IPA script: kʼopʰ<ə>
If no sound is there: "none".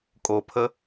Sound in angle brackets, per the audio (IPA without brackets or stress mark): ə